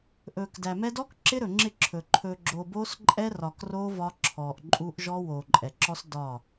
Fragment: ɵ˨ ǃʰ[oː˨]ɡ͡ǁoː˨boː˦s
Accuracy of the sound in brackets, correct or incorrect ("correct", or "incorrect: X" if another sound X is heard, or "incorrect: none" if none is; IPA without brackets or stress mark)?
incorrect: ɵː˨